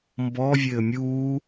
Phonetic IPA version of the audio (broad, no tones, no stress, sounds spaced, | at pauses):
m b ɔ vʲ ɘː mʲ uː